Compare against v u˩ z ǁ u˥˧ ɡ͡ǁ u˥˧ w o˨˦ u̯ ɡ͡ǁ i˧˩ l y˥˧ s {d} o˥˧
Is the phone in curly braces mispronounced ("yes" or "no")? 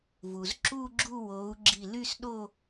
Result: yes